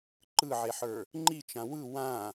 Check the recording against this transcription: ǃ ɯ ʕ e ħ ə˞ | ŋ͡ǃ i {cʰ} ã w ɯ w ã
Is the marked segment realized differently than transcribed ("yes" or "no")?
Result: yes